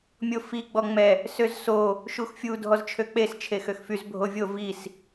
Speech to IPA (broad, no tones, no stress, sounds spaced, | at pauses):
mʲ o f i ɡ͡b ɔ ŋ͡m ɛ | s ø z s o | ʃ u x fʲ u dʱ ɔ z t͡ʃʰ ø k͡p e s t͡ʃʰ e x ø x f y z bʱ o vʲ o v i s